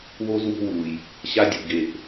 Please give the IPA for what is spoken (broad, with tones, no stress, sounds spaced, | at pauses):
w o˦ z w o̤˦ w u˨ j | ɕ a˦ dʲ u˨ ɡ e˨ ʔ